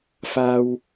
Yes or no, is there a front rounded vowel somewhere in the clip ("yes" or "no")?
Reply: no